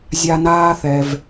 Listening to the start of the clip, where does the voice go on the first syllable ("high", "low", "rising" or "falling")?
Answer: high